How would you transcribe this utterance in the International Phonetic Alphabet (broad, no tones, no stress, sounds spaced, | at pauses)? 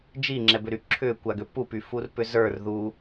d͡ʒ i ŋ͡ǁ ɛ b ʏ ɾ y ǁʰ ʏ kʷ a ɡ ʏ p u p y f u r p ʏ z ə˞ r ð u